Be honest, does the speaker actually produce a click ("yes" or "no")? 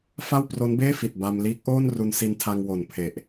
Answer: no